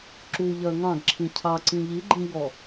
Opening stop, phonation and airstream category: click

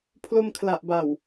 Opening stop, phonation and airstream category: aspirated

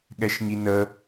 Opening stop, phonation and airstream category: implosive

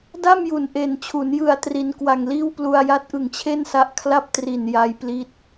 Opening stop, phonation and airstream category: plain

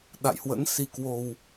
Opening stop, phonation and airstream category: implosive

